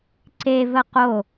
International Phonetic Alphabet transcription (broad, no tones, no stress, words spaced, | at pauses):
ǀevə qo